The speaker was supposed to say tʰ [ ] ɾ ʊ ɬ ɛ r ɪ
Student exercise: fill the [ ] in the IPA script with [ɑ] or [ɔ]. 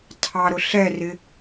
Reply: ɑ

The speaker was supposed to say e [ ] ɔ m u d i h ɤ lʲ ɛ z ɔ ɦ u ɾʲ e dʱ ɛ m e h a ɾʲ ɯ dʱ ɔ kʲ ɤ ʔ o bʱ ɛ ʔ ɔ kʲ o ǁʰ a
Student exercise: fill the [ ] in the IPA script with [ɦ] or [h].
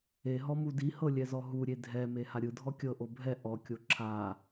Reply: ɦ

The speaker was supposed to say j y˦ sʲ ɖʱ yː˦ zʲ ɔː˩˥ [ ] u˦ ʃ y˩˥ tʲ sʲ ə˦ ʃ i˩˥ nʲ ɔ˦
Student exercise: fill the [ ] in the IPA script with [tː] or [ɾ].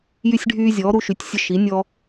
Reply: ɾ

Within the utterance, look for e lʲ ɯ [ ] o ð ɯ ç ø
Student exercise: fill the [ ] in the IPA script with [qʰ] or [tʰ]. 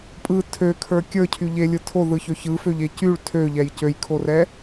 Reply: tʰ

